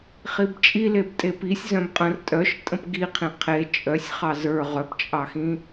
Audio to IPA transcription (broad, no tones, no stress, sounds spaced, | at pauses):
χ i b t͡ʃʼ i l e b tʼ e p i sʲ z œ̃ b qʼ ə̃ r tʼ œ ʃ tʼ ə̃ p ɡ i qʰ ĩ qʰ e t͡ʃʼ œ sʲ χ ɑ z ə˞ ʁ œ p t͡ʃʼ ɑ x ĩ